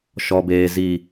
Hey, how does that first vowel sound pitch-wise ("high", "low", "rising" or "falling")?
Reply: low